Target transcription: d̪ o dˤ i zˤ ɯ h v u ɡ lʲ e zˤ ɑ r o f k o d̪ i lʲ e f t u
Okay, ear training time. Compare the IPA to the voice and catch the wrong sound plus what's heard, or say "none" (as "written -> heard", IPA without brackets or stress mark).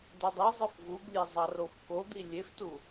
h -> f